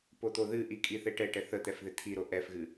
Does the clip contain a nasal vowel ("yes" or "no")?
no